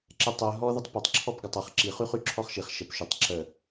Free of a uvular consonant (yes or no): no